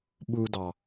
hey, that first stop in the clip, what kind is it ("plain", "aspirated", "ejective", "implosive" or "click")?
implosive